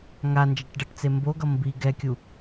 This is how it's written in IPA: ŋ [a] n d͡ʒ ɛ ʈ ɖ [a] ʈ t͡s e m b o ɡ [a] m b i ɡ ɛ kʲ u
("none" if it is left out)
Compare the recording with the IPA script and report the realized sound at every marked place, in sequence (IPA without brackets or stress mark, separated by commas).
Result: a, ʌ, ʌ